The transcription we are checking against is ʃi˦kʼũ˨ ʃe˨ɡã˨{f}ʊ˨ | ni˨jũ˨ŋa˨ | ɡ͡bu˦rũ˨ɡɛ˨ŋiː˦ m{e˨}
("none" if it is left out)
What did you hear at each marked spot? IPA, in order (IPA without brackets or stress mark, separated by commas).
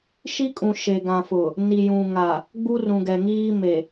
f, e˨